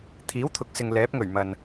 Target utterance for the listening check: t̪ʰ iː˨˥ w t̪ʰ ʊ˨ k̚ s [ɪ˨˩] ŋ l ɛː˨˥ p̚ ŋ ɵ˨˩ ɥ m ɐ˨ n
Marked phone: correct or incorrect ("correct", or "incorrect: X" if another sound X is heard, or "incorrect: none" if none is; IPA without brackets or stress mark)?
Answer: incorrect: ɪ˨